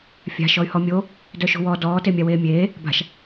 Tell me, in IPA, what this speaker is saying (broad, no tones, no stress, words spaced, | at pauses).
fʲa̤ ʃɔy̯hɔmʲo | dœʃo̤wɔ dɔː temʲaweːmʲeː | ba̤ʃ